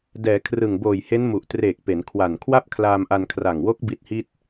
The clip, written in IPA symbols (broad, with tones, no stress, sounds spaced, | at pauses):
d ɛː˩˦ kʰ r ɯ˨˩ ŋ b oː˨˩ j h e˦˥ n m u˨˩ ʔ t r eː˨˩ k̚ p e˩˦ n kʰ w a˨˩ n kʰ w a˥˩ p̚ kʰ l aː˧ m ʔ a˧ n kʰ r a˨˩ ŋ w o˦˥ k̚ b i˦˥ t̚ h i˥˩ t̚